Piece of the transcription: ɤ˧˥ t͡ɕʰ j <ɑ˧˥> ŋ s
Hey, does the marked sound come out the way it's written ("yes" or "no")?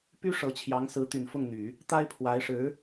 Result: yes